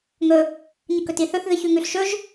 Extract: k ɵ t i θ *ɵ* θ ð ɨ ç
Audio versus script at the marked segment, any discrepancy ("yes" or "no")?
no